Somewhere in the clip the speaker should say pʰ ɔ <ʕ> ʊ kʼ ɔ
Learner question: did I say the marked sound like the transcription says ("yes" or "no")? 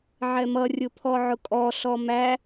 yes